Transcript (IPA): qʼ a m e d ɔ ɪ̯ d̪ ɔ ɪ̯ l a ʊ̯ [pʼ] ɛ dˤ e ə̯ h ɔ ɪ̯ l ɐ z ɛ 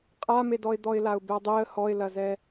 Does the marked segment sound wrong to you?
yes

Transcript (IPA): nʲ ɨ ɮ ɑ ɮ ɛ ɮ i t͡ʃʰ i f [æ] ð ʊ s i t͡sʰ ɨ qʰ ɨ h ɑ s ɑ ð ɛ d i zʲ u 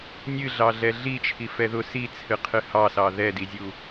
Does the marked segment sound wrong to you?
yes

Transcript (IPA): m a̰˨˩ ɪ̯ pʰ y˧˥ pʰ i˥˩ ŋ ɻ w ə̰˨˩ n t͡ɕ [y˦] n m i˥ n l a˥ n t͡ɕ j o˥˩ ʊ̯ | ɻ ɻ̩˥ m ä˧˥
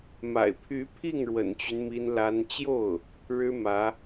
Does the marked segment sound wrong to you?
no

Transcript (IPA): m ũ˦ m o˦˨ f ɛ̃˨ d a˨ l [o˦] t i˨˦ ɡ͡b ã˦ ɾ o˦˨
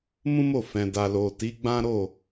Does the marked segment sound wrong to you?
yes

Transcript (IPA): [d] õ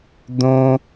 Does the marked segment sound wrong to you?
no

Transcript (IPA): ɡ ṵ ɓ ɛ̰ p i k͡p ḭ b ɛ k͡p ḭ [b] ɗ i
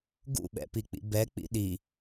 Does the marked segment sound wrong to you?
yes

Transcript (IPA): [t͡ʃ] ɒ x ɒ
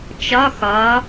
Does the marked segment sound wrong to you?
no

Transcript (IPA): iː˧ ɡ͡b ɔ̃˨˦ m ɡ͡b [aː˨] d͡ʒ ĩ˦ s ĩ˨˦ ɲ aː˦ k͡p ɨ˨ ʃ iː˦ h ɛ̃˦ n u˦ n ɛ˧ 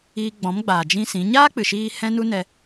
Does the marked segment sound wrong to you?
no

